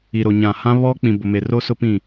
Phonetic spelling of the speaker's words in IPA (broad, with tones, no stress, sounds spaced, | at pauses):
i˨ ɾ o˨ ɲ ã˨ h ã˦ β ɔ˦ k͡p ĩ˨ b ʊ˨ m e˨ r o˦ s ʊ˦ p ĩ˦˨